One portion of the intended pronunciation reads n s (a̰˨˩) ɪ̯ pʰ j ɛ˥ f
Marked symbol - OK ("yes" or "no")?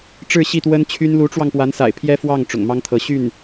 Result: yes